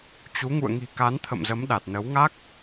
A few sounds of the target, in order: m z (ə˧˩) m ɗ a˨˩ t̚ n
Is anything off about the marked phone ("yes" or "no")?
yes